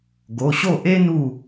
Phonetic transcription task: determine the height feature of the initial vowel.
mid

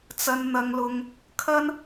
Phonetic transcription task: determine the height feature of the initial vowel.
low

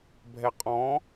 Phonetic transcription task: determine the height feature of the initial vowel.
mid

